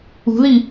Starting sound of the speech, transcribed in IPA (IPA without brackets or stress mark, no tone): ṳ